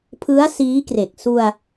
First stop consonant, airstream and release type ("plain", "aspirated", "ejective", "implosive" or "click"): aspirated